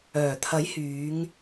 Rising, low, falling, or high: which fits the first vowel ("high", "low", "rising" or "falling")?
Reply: low